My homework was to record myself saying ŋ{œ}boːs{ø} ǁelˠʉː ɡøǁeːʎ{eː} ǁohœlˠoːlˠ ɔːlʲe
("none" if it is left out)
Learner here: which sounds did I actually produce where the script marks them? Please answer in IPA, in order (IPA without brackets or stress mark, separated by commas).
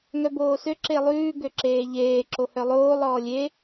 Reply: œ, ø, eː